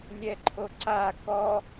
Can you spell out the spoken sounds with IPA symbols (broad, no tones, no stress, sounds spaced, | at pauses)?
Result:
lʲ ɛ ǃʰ o ǀ a k ɔ